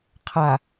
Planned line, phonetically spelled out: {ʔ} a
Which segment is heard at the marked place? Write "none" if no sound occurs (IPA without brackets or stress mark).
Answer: qʰ